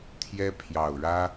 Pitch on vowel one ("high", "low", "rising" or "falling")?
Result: high